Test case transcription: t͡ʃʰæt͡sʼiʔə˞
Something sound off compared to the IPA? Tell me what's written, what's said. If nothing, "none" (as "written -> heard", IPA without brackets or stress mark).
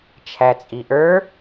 none